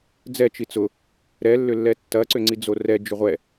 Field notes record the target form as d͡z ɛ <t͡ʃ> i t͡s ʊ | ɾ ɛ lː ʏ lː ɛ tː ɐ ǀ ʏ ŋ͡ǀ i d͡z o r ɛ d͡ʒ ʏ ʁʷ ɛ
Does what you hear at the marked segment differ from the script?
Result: no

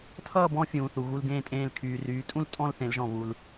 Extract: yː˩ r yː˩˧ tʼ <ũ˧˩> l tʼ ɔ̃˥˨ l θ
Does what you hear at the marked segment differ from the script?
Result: yes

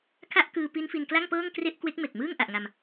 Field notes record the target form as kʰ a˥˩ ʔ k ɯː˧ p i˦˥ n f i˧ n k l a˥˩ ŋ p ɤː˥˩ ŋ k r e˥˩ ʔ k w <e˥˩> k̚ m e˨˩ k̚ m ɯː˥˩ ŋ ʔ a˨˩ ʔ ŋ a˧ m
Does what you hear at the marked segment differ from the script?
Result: yes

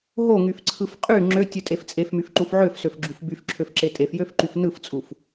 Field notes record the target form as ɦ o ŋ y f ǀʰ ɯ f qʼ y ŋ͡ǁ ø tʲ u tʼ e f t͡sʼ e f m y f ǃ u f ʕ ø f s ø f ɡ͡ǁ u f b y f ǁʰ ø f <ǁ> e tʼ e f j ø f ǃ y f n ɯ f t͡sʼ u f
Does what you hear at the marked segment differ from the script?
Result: no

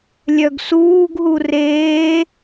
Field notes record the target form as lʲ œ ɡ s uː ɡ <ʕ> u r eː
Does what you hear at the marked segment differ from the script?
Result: yes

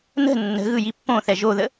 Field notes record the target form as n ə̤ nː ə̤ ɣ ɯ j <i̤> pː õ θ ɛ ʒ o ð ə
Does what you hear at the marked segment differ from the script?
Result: yes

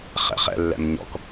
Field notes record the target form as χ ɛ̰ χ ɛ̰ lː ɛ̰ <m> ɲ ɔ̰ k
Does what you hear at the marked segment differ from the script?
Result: no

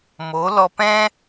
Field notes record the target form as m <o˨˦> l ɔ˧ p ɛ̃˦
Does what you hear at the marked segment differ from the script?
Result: no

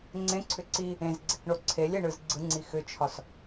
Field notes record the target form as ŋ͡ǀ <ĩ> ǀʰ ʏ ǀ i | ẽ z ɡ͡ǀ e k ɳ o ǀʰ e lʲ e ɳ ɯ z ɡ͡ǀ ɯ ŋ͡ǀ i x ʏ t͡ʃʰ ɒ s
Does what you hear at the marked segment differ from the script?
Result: yes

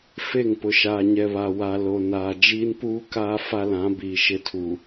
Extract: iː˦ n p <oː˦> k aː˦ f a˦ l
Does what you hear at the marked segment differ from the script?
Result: yes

